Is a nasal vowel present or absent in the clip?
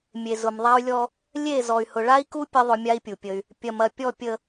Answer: absent